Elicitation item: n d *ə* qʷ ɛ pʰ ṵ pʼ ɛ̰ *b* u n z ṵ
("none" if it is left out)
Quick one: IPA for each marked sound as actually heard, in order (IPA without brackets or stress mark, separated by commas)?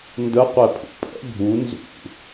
ə, bʱ